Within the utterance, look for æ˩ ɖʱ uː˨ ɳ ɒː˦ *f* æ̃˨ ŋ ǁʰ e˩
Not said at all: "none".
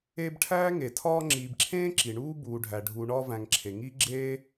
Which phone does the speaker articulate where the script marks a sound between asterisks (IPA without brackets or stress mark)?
v